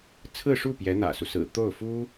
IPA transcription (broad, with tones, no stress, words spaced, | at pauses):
t͡sʰɹ̩˥˧ ʂu˥˩ pjɛ˧˥n̪ä̰˨˩su˦sɹ̩˨˩ t̪o˥˩ʊ̯fu˥